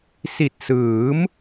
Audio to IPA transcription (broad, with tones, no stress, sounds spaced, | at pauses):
s i˨˩ t̚ s ɯː˩˦ m